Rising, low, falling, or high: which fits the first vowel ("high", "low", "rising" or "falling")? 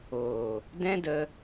low